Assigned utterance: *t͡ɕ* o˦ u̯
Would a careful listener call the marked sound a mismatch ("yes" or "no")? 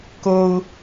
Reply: yes